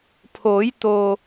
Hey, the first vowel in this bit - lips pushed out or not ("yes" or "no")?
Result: yes